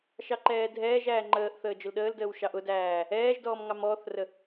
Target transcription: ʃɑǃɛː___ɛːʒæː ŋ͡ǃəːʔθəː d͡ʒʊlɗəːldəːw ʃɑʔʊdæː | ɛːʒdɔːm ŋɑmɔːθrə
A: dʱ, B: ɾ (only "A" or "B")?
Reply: A